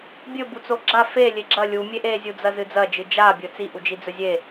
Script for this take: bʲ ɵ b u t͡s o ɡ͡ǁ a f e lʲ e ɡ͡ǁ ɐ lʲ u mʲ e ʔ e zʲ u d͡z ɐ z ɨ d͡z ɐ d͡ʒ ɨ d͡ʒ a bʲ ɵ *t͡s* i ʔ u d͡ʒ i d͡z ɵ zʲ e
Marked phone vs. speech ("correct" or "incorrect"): correct